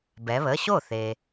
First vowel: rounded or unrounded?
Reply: unrounded